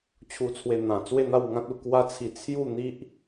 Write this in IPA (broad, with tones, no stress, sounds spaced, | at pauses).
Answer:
t͡ɕʰ u˧ t͡sʰ w e˧ n̪ ã˨˩ t͡s w e˥˧ n̪ a˥˧ w ŋ ã˦ t̚ u˧ k w a˦ t͡sʰ i˧ t͡sʰ j u˥˧ n̪ i˦ ʔ